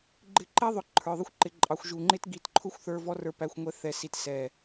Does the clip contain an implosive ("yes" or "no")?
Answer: no